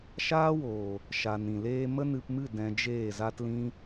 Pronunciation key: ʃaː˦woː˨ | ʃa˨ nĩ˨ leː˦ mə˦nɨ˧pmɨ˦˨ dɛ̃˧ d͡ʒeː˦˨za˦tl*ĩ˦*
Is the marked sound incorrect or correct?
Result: correct